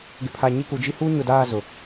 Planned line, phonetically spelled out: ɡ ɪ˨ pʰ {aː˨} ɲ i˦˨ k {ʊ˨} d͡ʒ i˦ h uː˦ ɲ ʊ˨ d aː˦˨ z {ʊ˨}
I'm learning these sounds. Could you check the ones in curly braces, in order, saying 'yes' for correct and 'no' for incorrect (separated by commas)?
no, no, yes